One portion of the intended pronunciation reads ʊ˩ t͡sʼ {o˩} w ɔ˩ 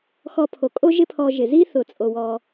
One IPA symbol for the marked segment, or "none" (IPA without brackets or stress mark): o˩